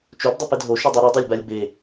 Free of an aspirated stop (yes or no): yes